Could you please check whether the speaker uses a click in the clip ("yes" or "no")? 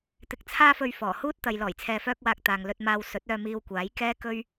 no